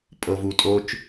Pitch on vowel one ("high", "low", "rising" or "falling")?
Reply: low